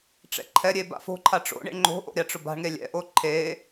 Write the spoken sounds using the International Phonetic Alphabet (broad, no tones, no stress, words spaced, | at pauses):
ʈ͡ʂɛ̰ǃʰɛɾʲe ba̰fo̤ǃʰa ʈ͡ʂo̰ɳḛɳ ŋ͡ǃo̤ʔo̰ ɾʲaʈ͡ʂʊba̤ɳŋe lʲɛ̰ʔo ǃʰe